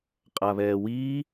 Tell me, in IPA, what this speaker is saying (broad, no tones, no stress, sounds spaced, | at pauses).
qʼ a β ɛː w iː